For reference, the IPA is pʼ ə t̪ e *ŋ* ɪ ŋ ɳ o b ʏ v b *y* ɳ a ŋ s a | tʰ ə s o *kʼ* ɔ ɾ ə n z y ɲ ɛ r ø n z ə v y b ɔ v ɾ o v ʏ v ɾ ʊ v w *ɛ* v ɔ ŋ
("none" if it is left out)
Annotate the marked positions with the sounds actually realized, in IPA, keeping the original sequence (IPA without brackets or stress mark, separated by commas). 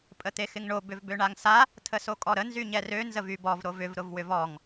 x, ø, kʼ, ʏ